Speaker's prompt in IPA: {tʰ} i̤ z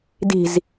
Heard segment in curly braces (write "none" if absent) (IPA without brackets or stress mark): d